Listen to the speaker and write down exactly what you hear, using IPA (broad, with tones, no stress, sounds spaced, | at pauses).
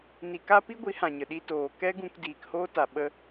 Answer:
n i˨ k a˦ p i˦ ɡʷ i˨˦ h ã˨ ɲ ə˨ ɗ i˧ t oː˨ k ɛ˦ ɡ ũ˧ k d iː˨ k h oː˦ t a˨ ɓ ə˦